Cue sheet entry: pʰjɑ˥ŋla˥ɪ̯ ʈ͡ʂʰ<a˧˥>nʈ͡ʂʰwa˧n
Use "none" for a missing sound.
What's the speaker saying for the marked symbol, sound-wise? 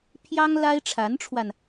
a˧˥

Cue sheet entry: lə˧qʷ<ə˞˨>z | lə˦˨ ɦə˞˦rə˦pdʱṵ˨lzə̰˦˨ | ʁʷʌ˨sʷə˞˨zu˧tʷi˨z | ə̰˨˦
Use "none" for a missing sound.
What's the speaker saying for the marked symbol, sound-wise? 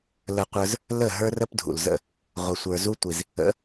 ə˞˧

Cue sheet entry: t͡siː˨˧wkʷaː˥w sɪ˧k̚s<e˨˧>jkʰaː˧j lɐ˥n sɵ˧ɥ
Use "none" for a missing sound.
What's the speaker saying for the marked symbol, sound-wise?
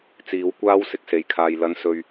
e˨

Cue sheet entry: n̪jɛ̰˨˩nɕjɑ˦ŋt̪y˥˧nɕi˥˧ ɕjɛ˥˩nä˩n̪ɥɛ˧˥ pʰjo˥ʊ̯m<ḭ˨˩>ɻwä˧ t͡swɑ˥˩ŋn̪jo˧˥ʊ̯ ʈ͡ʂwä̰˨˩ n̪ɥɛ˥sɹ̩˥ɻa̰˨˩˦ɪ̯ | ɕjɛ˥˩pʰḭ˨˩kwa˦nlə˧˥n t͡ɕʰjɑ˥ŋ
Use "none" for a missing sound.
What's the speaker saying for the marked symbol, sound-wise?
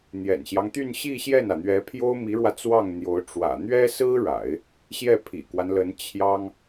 i˧˥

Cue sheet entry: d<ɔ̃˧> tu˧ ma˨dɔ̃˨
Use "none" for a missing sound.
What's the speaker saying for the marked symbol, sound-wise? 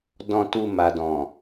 ɔ̃˧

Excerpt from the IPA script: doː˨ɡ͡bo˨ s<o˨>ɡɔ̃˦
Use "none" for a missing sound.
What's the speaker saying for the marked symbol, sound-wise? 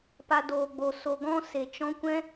o˨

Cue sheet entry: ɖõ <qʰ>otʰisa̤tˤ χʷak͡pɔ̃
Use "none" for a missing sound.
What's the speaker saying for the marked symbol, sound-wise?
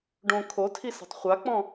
kʰ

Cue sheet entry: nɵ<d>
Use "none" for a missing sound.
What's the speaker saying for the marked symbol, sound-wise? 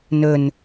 n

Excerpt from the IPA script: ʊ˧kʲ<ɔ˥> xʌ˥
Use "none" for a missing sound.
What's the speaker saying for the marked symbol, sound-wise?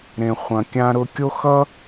o˥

